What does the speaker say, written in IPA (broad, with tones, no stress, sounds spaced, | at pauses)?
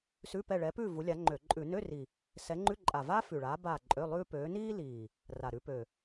s ʉ˧˥˧ p ɛ˦˨ ɭ ɛ˨˦ p ʉː˦˨ v u˨˦ lʲ a˨˦ ŋ͡ǃ ø˧˩˧ ǃʼ ʉ˧˩˧ n ø˧˥˧ r i˨˩ | s ɛ˨˦ ŋ͡ǃ ʉ˧˥˧ ǃʼ a˨˩ v aː˥ f ʉ˨˩ ɭ aː˨˦ b aː˦˨ ǃʼ ø˧˥˧ lˠ ʉː˥ p øː˨˦ n iː˥ l iː˨˩ | r a˨˩ ɾ ʉ˨˦ p ø˨˩